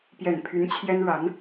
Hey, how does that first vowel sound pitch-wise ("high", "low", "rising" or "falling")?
low